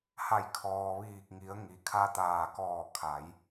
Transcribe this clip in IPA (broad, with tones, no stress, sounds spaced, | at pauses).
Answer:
h a˧˩ j kʰ ɔː˩ ʋ iː˧˩ k̚ ŋ i˩˧ ə̯ ŋ i˩ kʰ a˧ t̪ aː˧˩ k ɔː˧˩ kʰ a˩˧ j